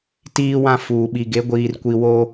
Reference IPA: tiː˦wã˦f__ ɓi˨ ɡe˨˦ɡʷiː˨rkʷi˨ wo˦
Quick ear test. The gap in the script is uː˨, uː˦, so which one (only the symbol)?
uː˨